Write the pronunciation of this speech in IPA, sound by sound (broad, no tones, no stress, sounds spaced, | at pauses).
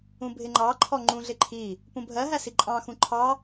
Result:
ũ bʱ ɪ ŋ͡ǃ ɑ ǃʰ ɔ ŋ͡ǃ ũ ɮ ɪ ǃʰ i | p ũ bʱ ɜ ɦ æ s i ǃʼ ɑ̃ x ũ ǃʰ ɑ